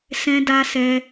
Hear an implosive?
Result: no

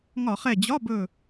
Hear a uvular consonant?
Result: yes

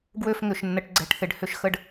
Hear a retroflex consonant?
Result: yes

